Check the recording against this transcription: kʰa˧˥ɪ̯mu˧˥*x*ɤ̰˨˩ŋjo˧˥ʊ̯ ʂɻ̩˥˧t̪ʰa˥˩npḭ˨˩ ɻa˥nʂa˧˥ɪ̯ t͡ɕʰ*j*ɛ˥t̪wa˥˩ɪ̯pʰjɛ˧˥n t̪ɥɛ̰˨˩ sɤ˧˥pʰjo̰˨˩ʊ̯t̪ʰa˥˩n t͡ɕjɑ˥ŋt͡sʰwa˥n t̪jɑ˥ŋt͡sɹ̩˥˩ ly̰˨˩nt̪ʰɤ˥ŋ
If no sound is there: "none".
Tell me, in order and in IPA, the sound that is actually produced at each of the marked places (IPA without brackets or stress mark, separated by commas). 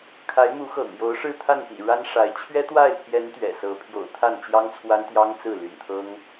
x, ɥ